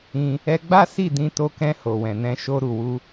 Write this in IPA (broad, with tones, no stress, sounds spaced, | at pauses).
ĩ˧ | ɛ˧ ɡ͡b a˦ s i˦˨ d ĩ˧ t o˧ k ɛ̃˧ h o˨ w ɛ̃˨ n ɛ̃˧ ʃ o˧ ɾ u˨ w u˧